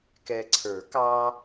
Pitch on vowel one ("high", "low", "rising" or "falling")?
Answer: low